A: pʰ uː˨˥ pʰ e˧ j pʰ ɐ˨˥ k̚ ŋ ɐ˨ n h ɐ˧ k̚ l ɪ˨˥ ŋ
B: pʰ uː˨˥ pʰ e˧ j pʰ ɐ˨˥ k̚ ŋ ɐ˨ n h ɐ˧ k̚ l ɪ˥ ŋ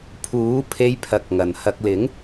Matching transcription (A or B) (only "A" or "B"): A